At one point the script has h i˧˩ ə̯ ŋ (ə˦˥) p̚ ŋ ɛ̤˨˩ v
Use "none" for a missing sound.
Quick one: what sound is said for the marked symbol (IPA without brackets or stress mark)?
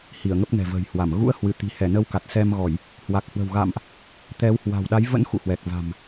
ə˦˥